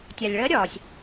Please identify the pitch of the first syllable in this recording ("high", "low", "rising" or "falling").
low